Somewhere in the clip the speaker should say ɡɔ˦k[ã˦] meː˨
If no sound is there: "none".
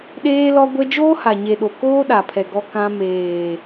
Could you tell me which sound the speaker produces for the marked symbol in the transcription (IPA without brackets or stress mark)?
ã˦